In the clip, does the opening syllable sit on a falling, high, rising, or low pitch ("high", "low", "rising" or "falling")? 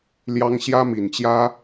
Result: high